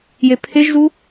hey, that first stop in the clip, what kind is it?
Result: aspirated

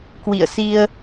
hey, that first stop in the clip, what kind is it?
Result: plain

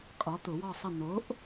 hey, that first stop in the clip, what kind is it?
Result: ejective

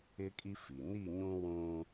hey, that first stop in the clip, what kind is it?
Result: ejective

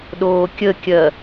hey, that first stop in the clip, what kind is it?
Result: implosive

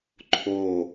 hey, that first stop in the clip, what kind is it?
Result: click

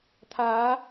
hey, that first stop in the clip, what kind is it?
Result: aspirated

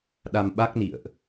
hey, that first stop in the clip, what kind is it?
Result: implosive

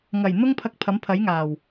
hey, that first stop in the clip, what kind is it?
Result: aspirated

